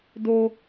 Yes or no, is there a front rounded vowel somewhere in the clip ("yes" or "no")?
no